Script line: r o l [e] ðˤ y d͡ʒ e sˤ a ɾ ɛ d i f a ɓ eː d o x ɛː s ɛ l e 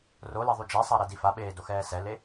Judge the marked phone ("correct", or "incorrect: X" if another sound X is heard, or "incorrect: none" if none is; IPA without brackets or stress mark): correct